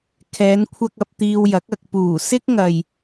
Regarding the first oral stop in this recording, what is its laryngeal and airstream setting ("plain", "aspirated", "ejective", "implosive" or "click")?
aspirated